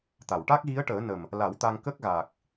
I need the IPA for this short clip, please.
t̪ a˨˩˨ w ʈ a˦˥ k̚ ɣ i˧˥ ə̯ ʈ əː˨˩˦ n ə˨˩ m | l a˨˩˦ w t̪ a˧ ŋ k ə˦˥ k̚ ɣ aː˨˩ k̚

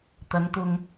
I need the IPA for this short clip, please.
t̪ ɐ˨˧ n t̪ ʊ˧ ŋ

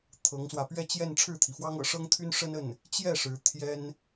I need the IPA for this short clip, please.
t̪ʰ ɤ˧˥ ŋ s w ä˧ p ɥ ɛ˥˧ t͡ɕ j ɛ˥˧ n ʈ͡ʂʰ ɻ̩˥˩ t̪ʰ i˩ f w ɑ˥ ŋ ɤ̰˨˩ ʂ ɤ˥ ŋ t̪ʰ y˥ n ʂ ə˥ n ə˥˩ n | t͡ɕ j ɛ˥˩ ʂ ɻ̩˧˥ t̪ʰ j ɛ˥ n

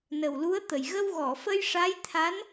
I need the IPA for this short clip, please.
n ə˨˩ w l u˧˥ ə̯ t̪ ə˨˩ j ɣ ə˧ w ɣ ɔ˨˩˨ f ə˧ j ʂ a˧˥ j t̪ʰ a˧˥ n

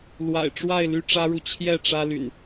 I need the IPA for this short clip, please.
l w a̰˨˩ ɪ̯ ʈ͡ʂ w a˥˨ ɪ̯ l y˥˨ ʈ͡ʂ ä˦ ɻ u˨ t͡ɕʰ j ɛ˥˨ ʈ͡ʂ ä˦ l y̰˨˩ n

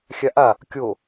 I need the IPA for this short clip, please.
xʲ a ʔ a | kʲ o

